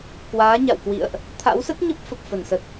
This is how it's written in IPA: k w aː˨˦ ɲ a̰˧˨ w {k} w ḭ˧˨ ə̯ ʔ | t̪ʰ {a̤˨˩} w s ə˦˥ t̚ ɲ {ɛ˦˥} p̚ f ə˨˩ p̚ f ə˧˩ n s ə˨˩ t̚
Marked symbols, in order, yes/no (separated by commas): yes, no, no